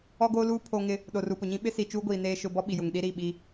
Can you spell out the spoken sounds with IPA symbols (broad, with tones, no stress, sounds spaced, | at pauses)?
ɔ˦ ɡ oː˦ l uː˦ pʰ oː˦ ŋ ɪ˦ | ɗ o˨ r u˨ p ʊ˨ ɲ ĩ˦ ɓ ɪ˦ s i˨ t͡ʃ uː˦ ɡʷ iː˨ n eː˦ ʃ ʊ˦ b ɔ˦ ɓ i˨ j ʊ˨ ŋ ɗ i˦ ɾ i˦˨ ɓ i˦